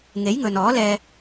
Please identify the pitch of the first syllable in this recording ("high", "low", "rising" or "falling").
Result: rising